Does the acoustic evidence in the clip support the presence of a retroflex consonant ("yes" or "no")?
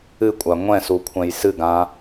no